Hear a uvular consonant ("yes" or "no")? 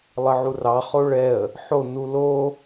yes